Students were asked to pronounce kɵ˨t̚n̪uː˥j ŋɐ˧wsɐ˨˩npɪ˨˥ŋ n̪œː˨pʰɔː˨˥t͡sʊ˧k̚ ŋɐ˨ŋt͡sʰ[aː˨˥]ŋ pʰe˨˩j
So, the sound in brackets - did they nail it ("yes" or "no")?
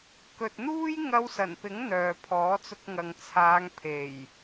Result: no